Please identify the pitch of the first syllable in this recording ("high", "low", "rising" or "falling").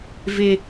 high